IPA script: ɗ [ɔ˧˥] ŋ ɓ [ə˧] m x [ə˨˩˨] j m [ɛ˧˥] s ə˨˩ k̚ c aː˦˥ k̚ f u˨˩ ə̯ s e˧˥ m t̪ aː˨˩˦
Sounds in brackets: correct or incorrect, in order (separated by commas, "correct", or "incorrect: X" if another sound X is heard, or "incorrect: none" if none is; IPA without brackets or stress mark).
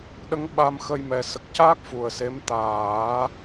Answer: incorrect: ə˧˥, incorrect: a˧, incorrect: ə˧, incorrect: ɛ˨˩